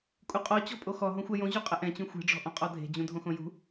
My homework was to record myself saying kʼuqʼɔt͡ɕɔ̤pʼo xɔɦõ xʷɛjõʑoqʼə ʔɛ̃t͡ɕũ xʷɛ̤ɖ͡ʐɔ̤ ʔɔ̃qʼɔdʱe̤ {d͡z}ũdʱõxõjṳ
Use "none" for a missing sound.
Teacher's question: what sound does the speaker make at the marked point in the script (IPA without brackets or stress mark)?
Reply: d͡ʑ